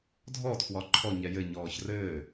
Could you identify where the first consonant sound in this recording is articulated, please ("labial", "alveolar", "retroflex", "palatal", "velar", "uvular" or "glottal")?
alveolar